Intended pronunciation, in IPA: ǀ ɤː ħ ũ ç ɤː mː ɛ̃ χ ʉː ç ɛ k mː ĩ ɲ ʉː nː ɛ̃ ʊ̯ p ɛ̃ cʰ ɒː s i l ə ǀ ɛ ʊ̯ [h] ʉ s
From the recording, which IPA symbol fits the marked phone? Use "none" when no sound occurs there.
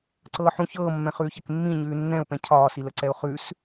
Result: χ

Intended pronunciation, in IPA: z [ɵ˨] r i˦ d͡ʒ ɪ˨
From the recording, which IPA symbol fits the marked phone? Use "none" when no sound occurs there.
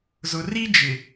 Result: ʊ˨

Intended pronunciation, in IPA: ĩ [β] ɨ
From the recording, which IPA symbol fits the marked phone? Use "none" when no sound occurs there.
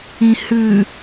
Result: h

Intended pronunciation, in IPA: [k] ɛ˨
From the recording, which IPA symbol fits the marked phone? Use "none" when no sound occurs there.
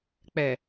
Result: k͡p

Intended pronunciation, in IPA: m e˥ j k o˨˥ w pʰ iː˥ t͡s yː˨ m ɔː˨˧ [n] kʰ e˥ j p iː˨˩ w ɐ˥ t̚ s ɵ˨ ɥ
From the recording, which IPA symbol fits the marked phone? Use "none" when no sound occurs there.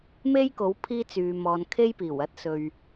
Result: n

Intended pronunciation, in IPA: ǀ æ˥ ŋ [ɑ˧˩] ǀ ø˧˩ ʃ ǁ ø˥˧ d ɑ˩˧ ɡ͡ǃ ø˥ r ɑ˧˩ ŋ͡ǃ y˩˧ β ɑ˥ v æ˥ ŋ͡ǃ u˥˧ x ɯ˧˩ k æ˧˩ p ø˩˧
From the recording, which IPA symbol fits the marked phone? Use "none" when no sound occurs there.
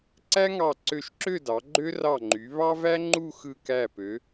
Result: ɑ˧˩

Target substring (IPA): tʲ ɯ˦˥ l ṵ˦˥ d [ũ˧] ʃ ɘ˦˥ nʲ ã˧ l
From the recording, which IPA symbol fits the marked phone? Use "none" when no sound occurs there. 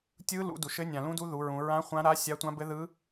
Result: u˧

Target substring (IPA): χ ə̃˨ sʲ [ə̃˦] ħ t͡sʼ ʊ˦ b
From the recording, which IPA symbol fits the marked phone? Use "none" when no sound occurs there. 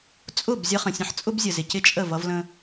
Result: ə̃˦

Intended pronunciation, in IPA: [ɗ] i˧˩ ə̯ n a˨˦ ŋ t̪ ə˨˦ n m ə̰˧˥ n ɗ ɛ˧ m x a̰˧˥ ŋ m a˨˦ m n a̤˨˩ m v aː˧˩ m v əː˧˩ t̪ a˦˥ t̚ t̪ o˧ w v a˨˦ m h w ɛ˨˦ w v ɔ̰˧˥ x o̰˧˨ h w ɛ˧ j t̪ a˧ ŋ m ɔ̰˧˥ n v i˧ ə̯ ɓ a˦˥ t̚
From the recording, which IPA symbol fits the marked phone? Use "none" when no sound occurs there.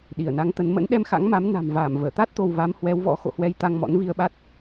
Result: ɗ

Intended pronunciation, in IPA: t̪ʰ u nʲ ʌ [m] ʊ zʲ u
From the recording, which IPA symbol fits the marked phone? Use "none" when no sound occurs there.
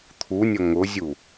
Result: ŋ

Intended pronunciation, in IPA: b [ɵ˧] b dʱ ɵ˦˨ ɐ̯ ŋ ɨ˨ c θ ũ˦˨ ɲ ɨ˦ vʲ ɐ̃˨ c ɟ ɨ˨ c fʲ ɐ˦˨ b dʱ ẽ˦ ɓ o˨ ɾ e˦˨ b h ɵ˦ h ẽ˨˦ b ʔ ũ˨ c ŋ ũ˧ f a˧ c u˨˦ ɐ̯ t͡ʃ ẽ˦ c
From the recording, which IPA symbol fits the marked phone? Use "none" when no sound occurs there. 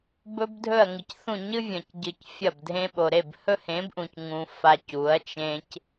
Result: ɵ˧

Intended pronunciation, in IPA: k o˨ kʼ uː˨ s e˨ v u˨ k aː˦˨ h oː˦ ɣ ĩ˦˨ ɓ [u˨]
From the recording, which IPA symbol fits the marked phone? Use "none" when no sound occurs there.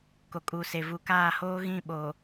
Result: o˨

